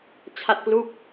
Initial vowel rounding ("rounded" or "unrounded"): unrounded